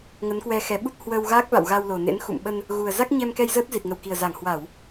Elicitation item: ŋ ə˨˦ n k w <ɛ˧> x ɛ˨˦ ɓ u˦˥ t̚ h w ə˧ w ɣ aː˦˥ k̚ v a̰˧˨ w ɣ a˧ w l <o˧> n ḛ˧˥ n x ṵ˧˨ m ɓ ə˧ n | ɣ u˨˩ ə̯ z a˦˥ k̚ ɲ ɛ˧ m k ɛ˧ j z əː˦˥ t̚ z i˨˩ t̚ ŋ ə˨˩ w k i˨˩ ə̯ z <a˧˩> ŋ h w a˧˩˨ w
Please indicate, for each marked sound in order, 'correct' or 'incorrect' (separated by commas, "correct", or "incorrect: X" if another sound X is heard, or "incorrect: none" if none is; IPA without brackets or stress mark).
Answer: correct, incorrect: o˨˩, correct